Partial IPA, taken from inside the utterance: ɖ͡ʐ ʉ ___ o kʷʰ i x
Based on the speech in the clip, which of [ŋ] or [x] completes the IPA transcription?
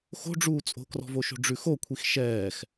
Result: x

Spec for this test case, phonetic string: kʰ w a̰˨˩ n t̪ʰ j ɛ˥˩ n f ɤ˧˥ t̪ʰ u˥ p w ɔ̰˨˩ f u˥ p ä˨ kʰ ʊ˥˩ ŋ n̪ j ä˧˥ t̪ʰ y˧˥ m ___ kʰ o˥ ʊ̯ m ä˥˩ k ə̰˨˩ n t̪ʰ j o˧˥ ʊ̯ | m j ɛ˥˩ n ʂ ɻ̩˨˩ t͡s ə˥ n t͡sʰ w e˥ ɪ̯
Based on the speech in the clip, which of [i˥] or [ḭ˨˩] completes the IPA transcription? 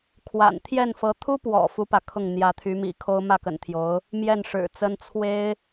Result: ḭ˨˩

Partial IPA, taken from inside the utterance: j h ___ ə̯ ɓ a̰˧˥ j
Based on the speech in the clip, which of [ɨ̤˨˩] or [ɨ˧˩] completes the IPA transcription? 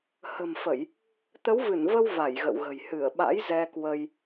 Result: ɨ˧˩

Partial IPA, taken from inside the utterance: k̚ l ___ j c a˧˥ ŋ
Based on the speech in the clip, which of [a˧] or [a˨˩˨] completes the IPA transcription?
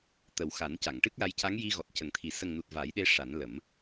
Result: a˧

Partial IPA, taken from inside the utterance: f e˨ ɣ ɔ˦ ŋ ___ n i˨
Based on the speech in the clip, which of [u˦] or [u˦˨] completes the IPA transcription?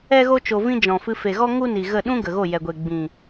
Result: u˦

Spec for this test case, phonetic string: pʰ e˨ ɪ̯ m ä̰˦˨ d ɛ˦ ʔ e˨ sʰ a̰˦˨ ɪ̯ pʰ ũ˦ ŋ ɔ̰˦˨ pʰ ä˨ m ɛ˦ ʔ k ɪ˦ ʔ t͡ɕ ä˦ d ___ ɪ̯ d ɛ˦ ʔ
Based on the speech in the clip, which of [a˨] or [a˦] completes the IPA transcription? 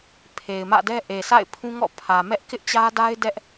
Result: a˦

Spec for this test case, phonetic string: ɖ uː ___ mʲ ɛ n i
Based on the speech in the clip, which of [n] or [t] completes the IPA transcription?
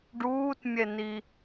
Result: t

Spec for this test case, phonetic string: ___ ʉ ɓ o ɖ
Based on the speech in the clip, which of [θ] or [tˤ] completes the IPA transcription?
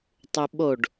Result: tˤ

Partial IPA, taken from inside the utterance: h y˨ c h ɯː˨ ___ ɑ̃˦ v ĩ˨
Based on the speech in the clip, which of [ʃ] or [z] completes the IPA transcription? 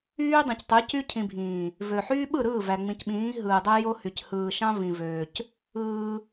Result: ʃ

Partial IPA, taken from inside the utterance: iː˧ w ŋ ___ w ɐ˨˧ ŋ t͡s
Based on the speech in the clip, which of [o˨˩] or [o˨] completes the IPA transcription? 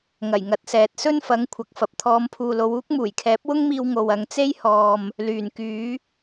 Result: o˨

